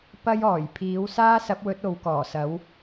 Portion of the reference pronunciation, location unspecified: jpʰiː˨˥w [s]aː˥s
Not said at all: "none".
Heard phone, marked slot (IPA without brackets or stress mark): s